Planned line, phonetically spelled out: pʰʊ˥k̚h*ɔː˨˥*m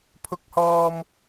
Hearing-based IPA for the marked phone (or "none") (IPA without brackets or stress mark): ɔː˥